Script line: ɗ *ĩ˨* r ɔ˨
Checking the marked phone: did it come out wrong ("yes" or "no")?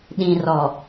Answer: no